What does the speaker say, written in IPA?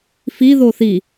f i ð o θ i

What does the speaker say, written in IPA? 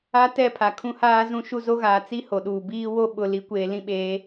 a˦ t ɛ˦˨ pʰ a˨ kʰ ũ˦ h aː˦ z ũ˦ ʃ u˦ z o˦ ɣ aː˨ t͡s i˦ h o˨ ɗ uː˨ b iː˦ w o˦ ɓ ʊ˨ l i˨ kʷ eː˨ l ĩ˦ ɓ eː˨˦

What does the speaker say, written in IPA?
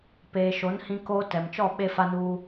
p eː˨ ʃ o˨˦ n h ĩ˦ k oː˦ t ɛ˨ m t͡ʃ ɔ˦˨ ɓ e˦ f a˦ n uː˦

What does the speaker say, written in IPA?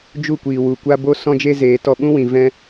d͡ʒ u˦˨ kʷ iː˨ w u˨ kʷ a˦ b o˦ s ɔ̃˦ d͡ʒ e˦ z eː˨˦ t ɔ˧ ɓ ũ˦ w ĩ˨ v ɛ̃˦

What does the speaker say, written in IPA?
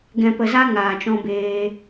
ɡ ɛ̃˨ p ə˨ z a˧ ŋ aː˨ t͡ʃ ɔ̃˧ b eː˧

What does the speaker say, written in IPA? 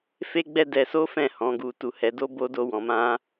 f e˦ ɡ͡b ɛ˦ d ɛ˧ s o˦ f ɛ̃˦˨ h ɔ̃˨˦ ɡ u˧ t u˧ h ɛ˧ d o˦ b o˦ d o˦ w ɔ̃˧ m ã˦

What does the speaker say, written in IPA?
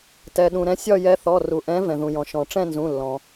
t ɛ˩ ɗ ũ˩ ɾ ɛ̃˧˥ sʲ ɒ˥˧ j ɛ˧˥ θ ɔ˩˧˩ r u˩ ʔ ɛ̃˧˥ v ɛ̃˩ ð ũ˩ j ɔ̃˩ ʃ ɔ̃˩ ʈ͡ʂ ɛ̃˥˧ n z ũ˩˧˩ lː ɔ̃˩

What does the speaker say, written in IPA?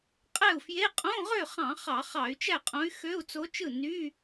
qʼ æ˥˩ u̯ f j e˧˥˧ qʼ õ˧˥˧ ʁ ø˥˩ χ ɑ̃˧˩˧ χ ɑ˧˩˧ χ ɑ˧˩˧ y̯ t͡ʃ æ˥˩ qʼ õ˧˥ y̯ x ø˧˥˧ u̯ t͡s o˧˥ t͡ʃ ɯ˥˩ n y˧˥˧

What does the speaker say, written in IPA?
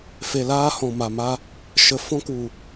f e˨ l aː˧ h ɔ̃˨ m a˨ m a˧ | ʃ ə˨ f ɔ̃˧ k u˨

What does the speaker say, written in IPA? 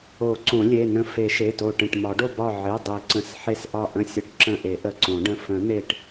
o˨˩˦ ǀ õ˨˩˦ lʲ e˩˧˩ n ə̃˧˩ f e˨˩˦ ʃ e˩˧˩ t o˧˩ ʈ ə̃˧˩ ʈ m ɒ˨˩˦ ɖ o˧˩ b ɒ˧˩ ʕ e˩˧˩ dˤ e˨˩˦ ǀ ə̃˩˧˩ s ħ e˧˩ s ʔ ɒ˧˩ ʔ ə̃˧˩ sʲ ə˨˩˦ ʈ ǁ ə̃˧˩ ʔ e˨˩˦ ʔ ə˩˧˩ ǀ õ˨˩˦ ɖ ə̃˩˧˩ f ə̃˨˩˦ n̪ e˧˩ ʈ

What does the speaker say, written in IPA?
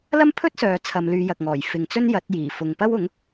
l ɐ˥ m pʰ ɵ˥ t̚ s œː˨ t͡sʰ ɐ˨˧ m l yː˨˧ j ɐ˨ k̚ ŋ ɔː˨˩ j f ɪ˨ ŋ t͡s ɵ˥ n j ɐ˨˥ t̚ j iː˨˩ f ʊ˨ ŋ p ɐ˥ w ʊ˨˥ ŋ

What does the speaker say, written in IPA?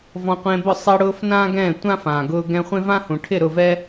v ɔ̃˧ qʷ ẽ˧ b ʊ˦˨ sˤ ɛ˧ ɽ ʊː˧ f n ãː˦ ɡ ɛ̃ː˦˨ tʷ ã˦ f ã˨ ɡ ʊː˧ ɡ ɛ̃˧ χʷ ẽ˦ v ã˦ h ũ˨ ʈʰ ɪ˦˨ ɾ ʊ˦˨ v ɛ˦

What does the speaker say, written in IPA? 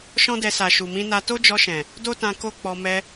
ʃ ɔ̃˦ d ɛ˧ s a˨ ʃ u˨ m ĩ˧ n a˧ t o˦ d͡ʒ ɔ˧ ʃ ɛ̃˨ | d o˦ t ã˧ k o˦ k͡p ɔ˧ m ɛ˧

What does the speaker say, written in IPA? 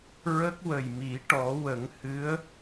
ɹ ə˦˥ k̚ w ə˨˩ j m i˨˩˦ ʈ ɔ˨˩˦ w ə˨˩˦ ŋ h ɨ˧˥ ə̯

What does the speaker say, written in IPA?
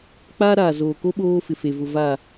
k͡p aː˦ ɾ aː˨ z oː˨ k o˦ ɓ oː˦ f ɪ˨ f e˨ v ʊ˨ v a˨

